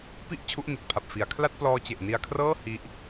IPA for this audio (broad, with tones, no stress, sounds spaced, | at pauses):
p i˥˩ ʔ t͡ɕʰ u˦˥ ʔ n i˨˩ t̚ pʰ a˨˩ p̚ f i˩˦ a̯ kʰ l a˥˩ t̚ p l ɔː˦˥ t͡ɕ e˨˩ ʔ n i˧ a̯ kʰ r ɤː˥˩ h i˦˥ ʔ